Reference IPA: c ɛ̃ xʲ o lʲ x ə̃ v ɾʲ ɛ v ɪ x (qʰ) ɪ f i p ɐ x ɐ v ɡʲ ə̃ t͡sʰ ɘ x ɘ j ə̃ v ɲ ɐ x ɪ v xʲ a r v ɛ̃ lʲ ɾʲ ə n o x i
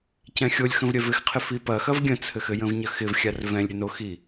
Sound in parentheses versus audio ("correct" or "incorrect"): correct